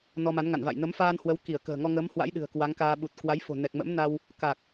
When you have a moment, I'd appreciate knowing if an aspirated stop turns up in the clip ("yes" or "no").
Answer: no